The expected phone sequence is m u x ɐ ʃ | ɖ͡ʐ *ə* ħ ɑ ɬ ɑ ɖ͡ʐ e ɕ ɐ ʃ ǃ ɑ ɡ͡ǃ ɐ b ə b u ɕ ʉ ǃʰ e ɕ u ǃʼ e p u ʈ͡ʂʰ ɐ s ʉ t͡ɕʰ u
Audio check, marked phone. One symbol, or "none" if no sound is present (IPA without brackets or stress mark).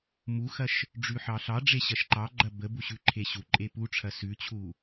ʉ